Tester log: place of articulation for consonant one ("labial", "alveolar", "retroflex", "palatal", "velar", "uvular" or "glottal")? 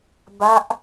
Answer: labial